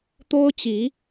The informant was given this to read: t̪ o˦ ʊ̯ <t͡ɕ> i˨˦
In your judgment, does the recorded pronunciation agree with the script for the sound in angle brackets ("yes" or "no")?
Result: yes